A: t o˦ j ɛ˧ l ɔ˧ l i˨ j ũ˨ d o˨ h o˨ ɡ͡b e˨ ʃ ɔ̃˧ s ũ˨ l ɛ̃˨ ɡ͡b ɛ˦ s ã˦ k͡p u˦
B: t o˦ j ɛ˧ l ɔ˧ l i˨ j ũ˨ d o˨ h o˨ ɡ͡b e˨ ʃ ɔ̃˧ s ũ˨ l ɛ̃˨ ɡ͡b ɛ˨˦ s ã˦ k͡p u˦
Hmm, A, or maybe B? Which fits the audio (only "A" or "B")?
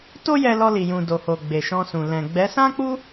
B